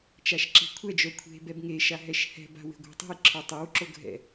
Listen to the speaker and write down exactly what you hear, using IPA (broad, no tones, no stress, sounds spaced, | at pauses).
t͡ʃ a ʃ ǁ e̤ kʷʰ ɛ d͡ʒ œ kʷʰ e̤ b ɛ b ŋ e ʃ a ɦ ɛ ʃ h ɛ̤ b a̤ w e̤ ɡʷ ɛ̤ tˤ e̤ j ǁʰ ə˞ tˤ ɛ w ǁ o ɡʱ ɛ̰